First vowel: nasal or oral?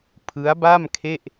oral